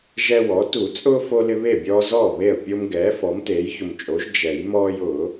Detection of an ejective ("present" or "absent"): present